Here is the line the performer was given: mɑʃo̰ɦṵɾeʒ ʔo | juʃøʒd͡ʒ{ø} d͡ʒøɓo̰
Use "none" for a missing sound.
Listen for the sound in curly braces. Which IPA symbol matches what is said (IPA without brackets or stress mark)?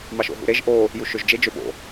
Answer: e